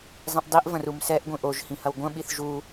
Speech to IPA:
zˤ ĩ ʔ dˤ i ʔ v ɐ̃ r u m s ɛ ʔ ɡʷ ĩ ʔ o ʒ h ĩ h ɐ w ɡʷ ɐ̃ ɓ i θ ʒ u

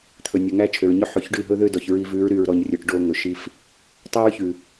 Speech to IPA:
t̪ʰ ɵ˨ nʲ ɔ˨ ŋ æ˦ t͡ʃʰ ø˨ ɹ ɲ ɵ˦ ħ ʉ˨ ç ɖ ʉ˦˨ ɦ ɵ˦ ð ø˦ d ɔ˨ ç ɹ i˧ v ʉ˨˦ ɹ ɾ y˨ ɹ ɾ ɔ˨ ɲ rʲ ɵ˨ ʈ ɖ o˦ ŋ ɵ˨ ʃ i˧ f | tˤ æ˦ ɹ ç ʉ˨

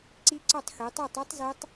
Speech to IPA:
ǀ i˦˥ ǀ ɒ˥˧ tˤ x i˨˦ tˤ o˥˧ tˤ u˦˥ tˤ z e˦˥ tˤ

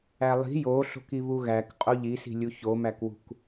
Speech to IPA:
æ lˠ i̤ j o ɬ o̤ k i β u ɣ æ k qʼ o ʎ i s i̤ lʲ u ç o m æ k w ṳ k

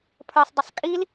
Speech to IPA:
pʰ ə˞ sˤ dˤ ʊ sˤ kʼ i l

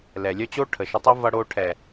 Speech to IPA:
l ɛ˨ lʲ œ˦ t͡ɕ o˦ ʈʰ ə˨ ʃ ə˧ tˤ ʌ˦ v ʌ˧ ɽ o˧ ʈʰ ɛ˨

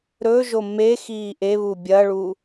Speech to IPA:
ɾ ɵ ʒ o m e x iː ʔ e β u bʲ ɐː ɭ u

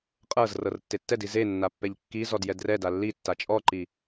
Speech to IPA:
qʼ ɤ z r ɤ r tː e tː ɛ d i z e nː a pː ɛ ʎ kː i z ɔ d j ɛ d r ɛ d a lː i tː a t͡ʃʼ ɔ ǃ i

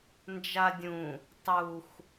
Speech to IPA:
n d͡ʒ a dʲ ũ | tˤ u x

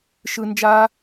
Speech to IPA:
ʃ ɯ˧ n d͡ʒ a˧

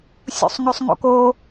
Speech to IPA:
sʲ ṵ sˤ ŋ ʉ sˤ ŋ o̰ k o

